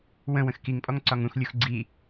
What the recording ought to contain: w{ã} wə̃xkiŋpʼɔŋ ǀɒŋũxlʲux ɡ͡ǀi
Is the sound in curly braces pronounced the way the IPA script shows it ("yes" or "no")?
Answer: no